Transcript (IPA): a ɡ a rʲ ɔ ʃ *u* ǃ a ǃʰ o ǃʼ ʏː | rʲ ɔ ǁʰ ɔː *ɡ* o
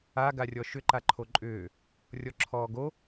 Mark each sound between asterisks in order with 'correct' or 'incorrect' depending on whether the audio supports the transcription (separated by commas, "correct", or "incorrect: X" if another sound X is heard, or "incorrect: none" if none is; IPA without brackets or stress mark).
incorrect: ʏ, correct